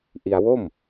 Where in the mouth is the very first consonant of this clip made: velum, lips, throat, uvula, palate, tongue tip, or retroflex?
throat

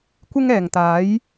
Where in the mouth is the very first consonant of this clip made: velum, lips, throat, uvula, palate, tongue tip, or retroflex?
velum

